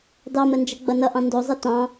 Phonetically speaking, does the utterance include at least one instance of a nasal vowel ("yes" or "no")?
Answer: yes